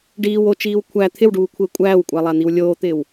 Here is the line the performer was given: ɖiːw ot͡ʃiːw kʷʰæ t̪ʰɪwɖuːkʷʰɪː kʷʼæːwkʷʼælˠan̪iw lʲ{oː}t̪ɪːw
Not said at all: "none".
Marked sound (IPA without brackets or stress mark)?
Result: oː